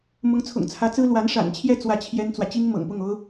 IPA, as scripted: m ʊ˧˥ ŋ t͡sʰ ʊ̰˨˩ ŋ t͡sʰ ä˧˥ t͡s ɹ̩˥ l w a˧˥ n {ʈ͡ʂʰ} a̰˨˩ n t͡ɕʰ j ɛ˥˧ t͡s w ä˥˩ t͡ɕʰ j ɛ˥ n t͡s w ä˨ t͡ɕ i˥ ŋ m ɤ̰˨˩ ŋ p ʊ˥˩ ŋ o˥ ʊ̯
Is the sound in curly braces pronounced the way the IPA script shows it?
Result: no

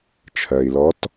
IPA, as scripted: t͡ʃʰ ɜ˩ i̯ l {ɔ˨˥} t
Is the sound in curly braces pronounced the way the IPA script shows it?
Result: yes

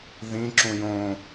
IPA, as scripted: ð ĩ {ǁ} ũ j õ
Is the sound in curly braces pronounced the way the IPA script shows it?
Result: yes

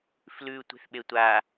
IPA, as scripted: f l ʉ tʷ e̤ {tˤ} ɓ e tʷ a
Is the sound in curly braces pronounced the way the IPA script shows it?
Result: no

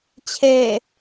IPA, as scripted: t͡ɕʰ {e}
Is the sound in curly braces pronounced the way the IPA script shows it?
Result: yes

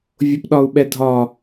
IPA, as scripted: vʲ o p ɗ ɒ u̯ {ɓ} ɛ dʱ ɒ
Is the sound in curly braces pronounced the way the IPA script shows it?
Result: yes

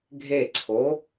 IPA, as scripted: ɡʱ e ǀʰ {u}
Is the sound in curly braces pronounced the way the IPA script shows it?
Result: no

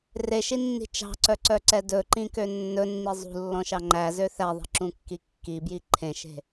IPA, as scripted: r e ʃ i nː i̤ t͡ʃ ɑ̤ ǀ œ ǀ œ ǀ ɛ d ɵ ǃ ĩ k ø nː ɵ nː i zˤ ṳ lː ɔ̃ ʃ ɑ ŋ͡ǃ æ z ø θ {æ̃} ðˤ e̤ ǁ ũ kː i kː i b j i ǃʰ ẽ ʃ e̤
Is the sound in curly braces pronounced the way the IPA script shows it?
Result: no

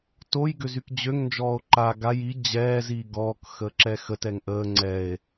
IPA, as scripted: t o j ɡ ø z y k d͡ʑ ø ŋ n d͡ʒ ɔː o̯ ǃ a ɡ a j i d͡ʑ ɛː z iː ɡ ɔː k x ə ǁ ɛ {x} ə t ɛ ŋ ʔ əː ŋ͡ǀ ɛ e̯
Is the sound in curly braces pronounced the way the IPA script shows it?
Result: yes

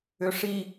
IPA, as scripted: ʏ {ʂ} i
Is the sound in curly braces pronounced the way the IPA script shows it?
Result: yes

